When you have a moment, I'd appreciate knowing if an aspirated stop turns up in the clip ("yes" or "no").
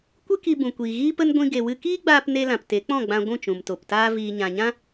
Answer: no